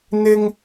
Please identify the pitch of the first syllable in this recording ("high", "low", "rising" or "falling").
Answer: high